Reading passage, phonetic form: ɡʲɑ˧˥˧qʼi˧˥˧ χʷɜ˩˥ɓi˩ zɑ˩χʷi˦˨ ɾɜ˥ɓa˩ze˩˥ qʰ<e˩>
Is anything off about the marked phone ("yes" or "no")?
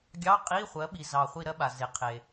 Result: no